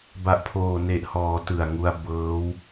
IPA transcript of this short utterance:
ba˨˩ʔpʰoː˨˩ne˨˩ʔhɔː˩˦ tɯ˨˩a̯ŋu˧a̯ bɤː˦˥w

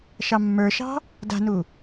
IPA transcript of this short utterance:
ʃɑmːə˞ʃɑ̤ | da̤nu

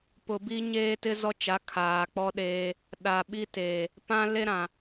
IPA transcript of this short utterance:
pʊ˨bi˦ɲeː˦ tɪ˦zɔ˦t͡ʃa˨˦ kʰaː˨k͡pɔ˦ɗeː˦ | ɗa˨ɓi˦teː˨ | pã˦le˦ɾã˨

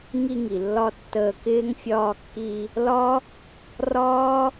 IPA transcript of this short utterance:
ŋi˧ŋi˨lːɒ˧ tːəː˧kɪː˦ŋ fʲɒː˧kːi˧ | lɒ˦ | rɒː˦

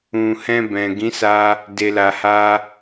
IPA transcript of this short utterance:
ũ˨hɛ̃˧ bɛ̃˨ɡĩ˨˦sa˧ | de˧la˧ha˦

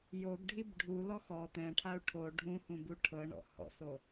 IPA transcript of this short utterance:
joɡɖʱib ɖʱulɔx ɔ t̪ɛ̃ʈʰau̯ ʈʰo ɖʱũhũbu ʈʰɤɳɔ̰ hɔ̰so

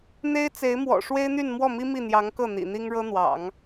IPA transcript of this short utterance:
n̪e˥ɪ̯t͡se˧˥ɪ̯mwɔ̰˨˩ ʂwe˥ɪ̯n̪y˥˧n mwɔ˥˩mi˥ mi˥˩n̪jɑ˧˥ŋkɤ˥˩ n̪ḭ˨˩n̪i˥ŋ ɻɤ˥ n̪wɑ̰˨˩˦ŋ

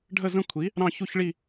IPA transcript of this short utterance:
ɖʱə˥˧zə̃˥˧kʷʰi˨˥ | ɾɑ̃˥˧çu˥˧çɭi˥˧

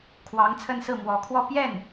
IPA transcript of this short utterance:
kʰwɑ˧˥ŋt͡sʰə˥˧nsɹ̩˥˩ mwɔ˧˥kʰwɔ˥˧ pjɛ˥˩n

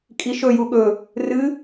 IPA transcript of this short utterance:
kʼiʃɵ juɠɵ | rɨ

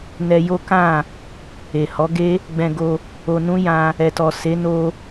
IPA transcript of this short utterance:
nɛ˧jo˦kã˦˨ | e˨hɔ˨˦ɡe˦ | ɡ͡bɛ̃˧ɡo˧ | o˧nũ˦ jã˧ | ɛ˨tɔ˨ se˨˦ no˧

